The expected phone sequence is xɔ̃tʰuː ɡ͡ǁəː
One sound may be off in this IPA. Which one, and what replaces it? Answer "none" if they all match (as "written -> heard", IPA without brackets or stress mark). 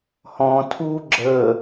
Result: x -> h